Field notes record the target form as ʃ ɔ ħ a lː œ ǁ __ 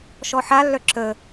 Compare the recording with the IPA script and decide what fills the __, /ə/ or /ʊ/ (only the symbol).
ə